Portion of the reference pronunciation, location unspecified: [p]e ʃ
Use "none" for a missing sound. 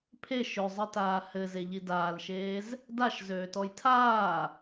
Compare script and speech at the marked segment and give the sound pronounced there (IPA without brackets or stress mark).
pʰ